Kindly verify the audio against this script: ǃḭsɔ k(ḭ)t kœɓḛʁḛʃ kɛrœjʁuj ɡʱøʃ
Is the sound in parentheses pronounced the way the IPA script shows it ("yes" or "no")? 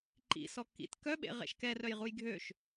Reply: yes